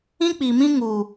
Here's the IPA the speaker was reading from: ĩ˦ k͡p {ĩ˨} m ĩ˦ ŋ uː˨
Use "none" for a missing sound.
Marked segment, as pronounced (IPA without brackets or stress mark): i˨